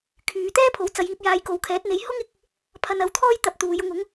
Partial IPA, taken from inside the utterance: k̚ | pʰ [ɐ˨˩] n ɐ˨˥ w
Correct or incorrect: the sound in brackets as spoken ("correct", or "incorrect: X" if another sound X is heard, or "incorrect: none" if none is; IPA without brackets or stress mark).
incorrect: ɐ˧